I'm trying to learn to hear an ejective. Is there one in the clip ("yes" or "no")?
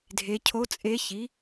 yes